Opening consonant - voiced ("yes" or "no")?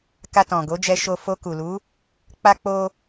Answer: no